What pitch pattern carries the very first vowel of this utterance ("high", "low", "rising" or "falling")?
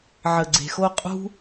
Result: low